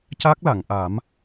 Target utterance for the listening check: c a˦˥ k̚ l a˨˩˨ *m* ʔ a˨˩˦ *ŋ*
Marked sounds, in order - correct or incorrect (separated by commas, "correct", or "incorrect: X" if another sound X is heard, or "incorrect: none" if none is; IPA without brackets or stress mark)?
incorrect: ŋ, incorrect: m